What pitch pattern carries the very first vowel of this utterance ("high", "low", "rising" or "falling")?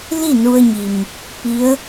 falling